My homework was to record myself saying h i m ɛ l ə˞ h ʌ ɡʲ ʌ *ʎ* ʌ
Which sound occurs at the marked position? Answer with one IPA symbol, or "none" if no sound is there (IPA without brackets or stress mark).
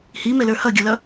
l